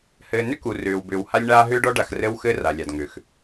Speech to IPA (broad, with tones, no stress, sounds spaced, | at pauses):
h ɘː˨ n ʏ˦ k u˨ r ʏː˨ w b ʏː˨ w h a˦ lʲ ɳ aː˦ ɦ ʏː˦ ɖ ɔ˦ ɖ a˨ x r ɘ˦ w x ɘ˦ r a˨ lʲ a˨ d ŋ ʏ˨ x